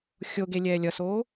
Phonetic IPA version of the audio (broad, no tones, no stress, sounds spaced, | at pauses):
xʲ o ɡ e lʲ ɛː lʲ ʌ s oː